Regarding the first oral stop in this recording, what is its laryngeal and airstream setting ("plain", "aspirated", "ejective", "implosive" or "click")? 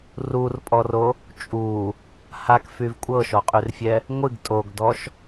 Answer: ejective